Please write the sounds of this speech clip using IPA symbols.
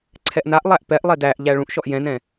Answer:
ǀʰ ɛ ʔ n a ʔ lˠ æ ʔ p ɛ ʔ lˠ ɛ d æ ʔ ʎ æ ɭ ũ ʔ ʃ ɔ ʔ j ɛ̃ n ɛ̃

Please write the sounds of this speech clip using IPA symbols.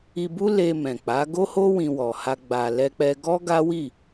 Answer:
i˧ b u˦ l e˧ m ɛ̃˨ k͡p a˨˦ ɡ o˦ h o˦ w ĩ˧ w ɔ˨ h a˧ ɡ͡b a˨ l ɛ˧ k͡p ɛ˧ ɡ ɔ˦ ɡ a˦ w i˦˨

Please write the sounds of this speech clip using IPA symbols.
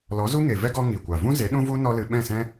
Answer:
l ɔ˨˦ z u˦ ŋ e˨ v ɛ˦ ɡ ɔ˦ ŋ i˨ kʷ a˨ v ũ˦ z e˨˦ ɗ ũ˦ v u˦ n ɔ˦ l ɨ˧ ɓ ɛ̃˦˨ s ɛ̃˦

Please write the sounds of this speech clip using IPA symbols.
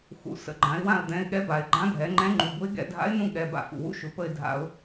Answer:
x ṵ˩˧ s ə̰˩˧˩ ɡ͡ǃ ã˩˧ ɪ̯ w ã˦˨ ə̯ d̪ ɛ̃˩˧˩ ɪ̯ ɠ ɛ˧˥ b a˩ ɪ̯ ɡ͡ǃ ã˧˥ dʱ ɛ˩˧ ŋ͡ǃ ɛ̃˧˥ ŋ͡ǃ u˩ b ʊ˧˥ ɪ̯ ɡ ɛ̰˦˨ dʱ a̰˧˥ ɪ̯ n ũ˦˨ ɠ ɛ˩˧˩ b a̰˧˩˧ f ṵ˩ w ṵ˧˥ ʃ ʊ˩˧ p ə˦˨ ɪ̯ dʱ a̰˧˩˧ ʊ̯

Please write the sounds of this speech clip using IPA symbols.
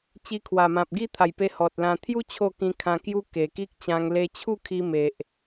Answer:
t͡ɕ i˧ kʰ w a˨˩ m ã˨ p̚ ɡ i˥˧ t̪ʰ a˨˩ j p e˧ h ɔ˨ t̚ l ã˧ t̪ʰ j u˦ t͡ɕʰ o˥˧ k ĩ˧ kʰ ã˧ k j u˦ k e˨˩ k i˦ k̚ t͡ɕ ã˧ ŋ l e˧ t͡ɕʰ u˥˧ kʰ i˧ m e˨ ʔ

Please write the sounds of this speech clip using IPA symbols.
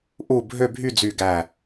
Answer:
ʔ u˧˩ bʱ ø˥˧ bʱ y˥˧ d͡z y˧˩ ɡ æ˧˩

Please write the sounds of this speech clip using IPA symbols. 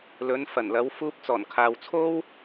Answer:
l ɵ˨˧ n f ɐ˨˩ n l ɐ˨˧ w f uː˧ p̚ t͡s ɔː˨˩ n kʰ aː˨ w t͡sʰ o˥ w

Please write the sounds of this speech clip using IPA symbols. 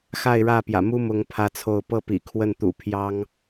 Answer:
x a˥˧ ɪ̯ ɻ ä˥˩ p j ä̰˨˩ m u˥ m ʊ˥ ŋ pʰ ä˥ t͡sʰ o˥˧ ʊ̯ p ɤ˥˩ p ḭ˨˩ kʰ w ə˥˩ n t̪ ṵ˨˩ pʰ j ɑ˥ ŋ

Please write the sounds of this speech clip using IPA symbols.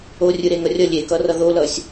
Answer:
o rʲ ɯ ɾ e ŋ ʌ rʲ ʌ lʲ e k ʌ r ʌ ð o l ʌ sʲ

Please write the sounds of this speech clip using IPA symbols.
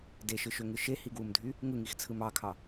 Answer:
d e ʃ ɯ ʃ ø ŋ ɯ ʃ e h i ɡ w u m dʱ y | ŋ ɯ ŋ i x t͡sʰ ɯ m ɑ kʰ ɑ

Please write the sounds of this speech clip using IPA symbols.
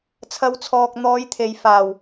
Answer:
t͡sʰ ɐ˨˧ w t͡sʰ ɔː˨ k̚ n̪ ɔː˨˧ j t̪ʰ e˨ j f aː˨˩ w

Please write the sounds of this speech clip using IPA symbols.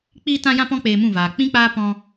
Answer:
k͡p iː˧ t ã˧ j ã˧ p ɔ̃˧ k͡p eː˧ m ũ˦˨ v aː˨ k͡p ĩ˦ k͡p aː˦ p ɔ̃˧

